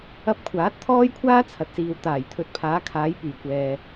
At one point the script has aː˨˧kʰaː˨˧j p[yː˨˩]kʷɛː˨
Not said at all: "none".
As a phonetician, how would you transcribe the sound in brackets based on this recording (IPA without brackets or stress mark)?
yː˨˩